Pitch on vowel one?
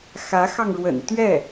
rising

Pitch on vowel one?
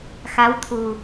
rising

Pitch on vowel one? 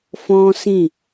high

